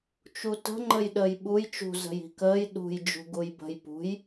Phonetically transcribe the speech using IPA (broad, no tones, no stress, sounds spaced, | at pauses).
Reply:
t͡ʃ u t ə̤ ŋ͡ǃ ə j ɗ əː j ɓ u j t͡ʃ ṳ z ə̤ j i̤ k əː j ɗ ṳ j d͡ʒ ṳ ɡ u j b ə̤ j p ṳ j